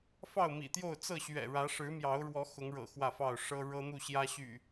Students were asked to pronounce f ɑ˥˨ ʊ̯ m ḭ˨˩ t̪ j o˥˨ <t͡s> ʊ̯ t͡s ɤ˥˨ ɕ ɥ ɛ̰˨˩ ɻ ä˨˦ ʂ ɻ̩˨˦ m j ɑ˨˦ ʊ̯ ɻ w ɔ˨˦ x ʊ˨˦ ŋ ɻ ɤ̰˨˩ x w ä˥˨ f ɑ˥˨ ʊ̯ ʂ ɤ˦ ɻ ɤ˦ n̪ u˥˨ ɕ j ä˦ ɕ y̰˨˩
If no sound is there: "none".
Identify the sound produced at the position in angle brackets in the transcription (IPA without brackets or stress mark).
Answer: none